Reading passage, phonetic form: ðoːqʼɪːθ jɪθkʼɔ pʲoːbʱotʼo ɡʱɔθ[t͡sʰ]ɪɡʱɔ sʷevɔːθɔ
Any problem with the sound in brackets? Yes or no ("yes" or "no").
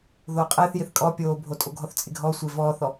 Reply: yes